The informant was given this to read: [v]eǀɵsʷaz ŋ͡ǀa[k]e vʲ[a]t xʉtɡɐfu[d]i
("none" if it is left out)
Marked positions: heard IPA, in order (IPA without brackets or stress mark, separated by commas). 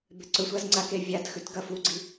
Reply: b, k, a, ɡ͡ǀ